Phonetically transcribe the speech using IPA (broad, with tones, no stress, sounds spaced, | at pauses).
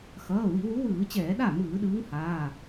x ʌː˩˧˩ w i˧˩˧ w u˨˥ w ɯː˧˩˧ t͡ɕ ɛː˧˩˧ ɗ a˥˩ m ɯː˧˩˧ ɗ ɯː˨˥ ŋ h aː˩˧˩